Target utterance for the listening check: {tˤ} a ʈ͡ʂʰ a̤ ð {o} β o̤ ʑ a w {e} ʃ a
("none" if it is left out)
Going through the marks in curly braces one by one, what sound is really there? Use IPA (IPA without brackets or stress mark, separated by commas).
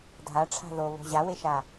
dʱ, o, e